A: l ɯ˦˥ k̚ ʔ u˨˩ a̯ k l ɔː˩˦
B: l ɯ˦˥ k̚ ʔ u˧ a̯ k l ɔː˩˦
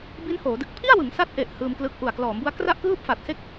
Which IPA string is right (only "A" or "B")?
A